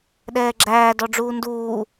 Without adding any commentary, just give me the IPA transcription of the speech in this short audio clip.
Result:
ɗ ɛː ɡ͡ǁ æː d ɔ ɖ͡ʐ uː n d uː

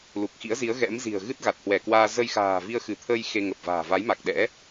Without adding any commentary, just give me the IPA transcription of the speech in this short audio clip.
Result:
l u˨˩ k̚ x ḭ˧˥ ə̯ z i˨˦ ə̯ ɣ ɛ̰˧˥ m z i̤˨˩ ə̯ ɣ ɨ˦˥ t̚ ɣ a˨˩ t̚ h w ɛ˧˩ k w aː˧ z ə˧ j x a̤ː˨˩ v i˧ ə̯ x ɨ˧˩ t̪ʰ ə˧ j x e˧ ŋ ə˨˩ p̚ v a̤ː˨˩ v a˨˦ j m a˨˩ k̚ ɗ ɛ̰˧˥

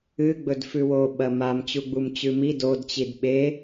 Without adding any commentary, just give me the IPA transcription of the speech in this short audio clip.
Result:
ɨ ɡ͡b ɵ d f ʉ w o ɓ ɐ m a m t͡ɕ u ɡ͡b u m t͡ɕ ʉ m i d o d t͡ɕ i d ɓ e

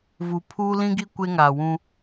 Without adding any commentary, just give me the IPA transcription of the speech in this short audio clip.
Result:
v u˨ pʰ uː˦ l ĩ˦ ɡ i˦ kʷ e˦ ŋ aː˨ w ũ˦

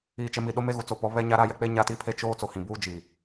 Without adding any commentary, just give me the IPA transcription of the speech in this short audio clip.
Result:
iː˨ t͡ʃ ɛ˨ m i˨ ɗ o˦ m e˦ ɣ u˨ t͡s o˦˨ p ɔ˦ β ɛ˦ ɲ a˦ ɾ a˦ j ɛ˦ k͡p e˦ ɲ a˦ t i˦ pʰ e˦ t͡ʃ oː˦ t͡s o˨ h ĩ˨ b uː˦ d͡ʒ iː˨

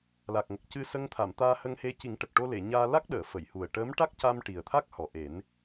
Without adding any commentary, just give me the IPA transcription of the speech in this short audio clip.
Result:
l a˨˩ k̚ ŋ ə˨˩ k̚ c ɨ˧ s ə˧ ŋ t̪ʰ a˨˩˨ m t̪ aː˧ h ə˧ ŋ h e˧ c i˨˩˦ ŋ ʈ ə˨˩ k̚ ʈ o˧ l e˨˩˨ ɲ aː˧ l a˦˥ k̚ ɗ əː˨˩˨ f ə˨˩˨ j h u˨˩ ə̯ ʈ əː˧˥ m ʈ a˦˥ k̚ c a˧ m ʈ i˨˩ ə̯ t̪ʰ a˦˥ k̚ h ɔ˨˩ ʔ e˨˩˦ n

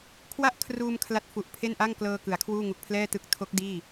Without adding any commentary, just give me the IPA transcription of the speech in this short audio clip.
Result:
kʰ w a˥˩ ʔ kʰ r uː˧ m kʰ l a˦˥ t̚ f u˨˩ ʔ pʰ e˥˩ n ʔ a˥˩ ŋ k l ɤː˧ k ɯ˩˦ a̯ kʰ w uː˥˩ ŋ u˨˩ k̚ pʰ l ɛː˥˩ t ɯ˦˥ k̚ tʰ o˦˥ k̚ d iː˥˩

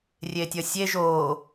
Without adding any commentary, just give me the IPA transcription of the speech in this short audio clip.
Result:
rʲ e tʲ ʌ sʲ e ʒ o

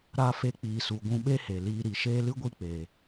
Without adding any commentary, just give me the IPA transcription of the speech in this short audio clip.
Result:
ɾ a˧ f e˧ k͡p iː˨ s u˨ ɡʷ ũ˧ ɓ e˦ h e˨ l iː˧ ɾ i˨ ʃ eː˦ l ɨ˦ ɡʷ i˦ k͡p eː˨

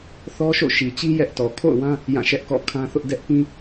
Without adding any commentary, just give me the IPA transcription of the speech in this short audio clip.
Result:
θ ɔ˦ ʃ o̰˦˨ ʃ i˨ t͡ɕ i˦ j ɛ˦ ʔ t ɔ˨ kʰ o̰˦˨ ʊ̯ w ã˦ | j ã˦˨ ʃ ɛ˦ ʔ k ɔ̰˦˨ kʰ ã˦ θ ʊ˦ ʔ d ɛ˦ ʔ p ĩ˦

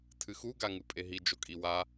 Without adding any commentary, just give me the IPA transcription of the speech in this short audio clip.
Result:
tʰ ɨ x u ɡ a ŋ ɨ pʼ e ɦ i d͡ʒ o kʼ i w a

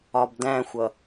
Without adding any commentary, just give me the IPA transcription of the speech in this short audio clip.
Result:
ɒ b d æ̃ xʷ ʌ

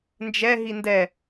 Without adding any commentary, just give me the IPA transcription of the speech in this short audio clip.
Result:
n d͡ʒ ɛ ɦ i n d ɛ

